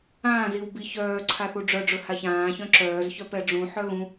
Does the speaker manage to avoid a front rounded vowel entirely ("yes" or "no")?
no